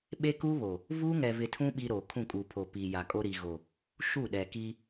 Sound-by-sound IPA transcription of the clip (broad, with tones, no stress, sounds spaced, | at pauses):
ɓ e˦ k u˦ β o˨ | v uː˦ ŋ ɛ˨ v ɪ˨ tʰ ũ˦ ɓ i˦ ɾ o˨ kʰ ũ˦˨ kʼ u˨ pʰ o˨ p iː˨ j a˨ kʼ o˦ ɾ i˨ ɣ o˨ | ʃ u˦˨ ɗ ɛ˨ k i˦